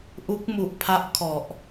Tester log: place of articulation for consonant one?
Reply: glottal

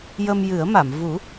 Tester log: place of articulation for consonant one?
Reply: palatal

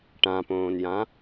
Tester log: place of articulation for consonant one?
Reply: retroflex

